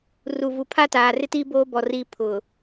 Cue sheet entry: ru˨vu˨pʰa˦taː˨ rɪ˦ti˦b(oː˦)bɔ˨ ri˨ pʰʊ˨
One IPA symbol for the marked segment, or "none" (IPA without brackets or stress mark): oː˦